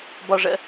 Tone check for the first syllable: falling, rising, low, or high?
low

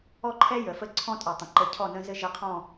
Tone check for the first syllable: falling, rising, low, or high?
high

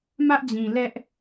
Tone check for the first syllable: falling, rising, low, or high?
high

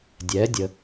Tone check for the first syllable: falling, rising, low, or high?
rising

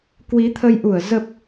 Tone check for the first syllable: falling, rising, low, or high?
rising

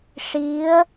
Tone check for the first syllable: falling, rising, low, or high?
rising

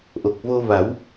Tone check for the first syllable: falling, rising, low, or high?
low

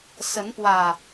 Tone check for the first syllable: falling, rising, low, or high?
rising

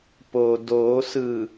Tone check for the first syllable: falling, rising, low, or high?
low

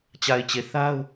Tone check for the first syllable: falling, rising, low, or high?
low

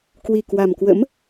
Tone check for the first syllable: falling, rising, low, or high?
low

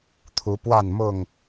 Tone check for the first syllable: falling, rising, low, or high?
rising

